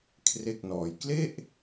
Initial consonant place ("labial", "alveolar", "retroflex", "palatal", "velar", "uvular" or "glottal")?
velar